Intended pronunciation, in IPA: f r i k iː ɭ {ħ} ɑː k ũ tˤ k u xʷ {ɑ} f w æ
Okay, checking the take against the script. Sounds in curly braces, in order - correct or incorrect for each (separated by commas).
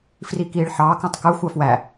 correct, correct